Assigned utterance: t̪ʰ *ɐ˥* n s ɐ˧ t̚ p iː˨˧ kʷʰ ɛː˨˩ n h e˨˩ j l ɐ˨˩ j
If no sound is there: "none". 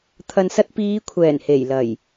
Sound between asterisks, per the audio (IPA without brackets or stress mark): ɐ˨